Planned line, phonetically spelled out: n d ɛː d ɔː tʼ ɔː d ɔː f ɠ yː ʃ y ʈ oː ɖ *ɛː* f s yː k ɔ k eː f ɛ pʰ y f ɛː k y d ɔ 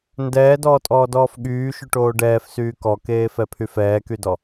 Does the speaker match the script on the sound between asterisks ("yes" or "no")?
yes